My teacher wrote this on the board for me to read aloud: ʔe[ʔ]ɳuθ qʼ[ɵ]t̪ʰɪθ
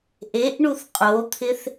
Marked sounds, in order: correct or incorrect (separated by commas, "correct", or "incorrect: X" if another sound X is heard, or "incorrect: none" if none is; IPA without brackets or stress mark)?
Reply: correct, incorrect: o